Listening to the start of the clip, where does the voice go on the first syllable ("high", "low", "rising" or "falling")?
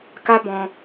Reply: high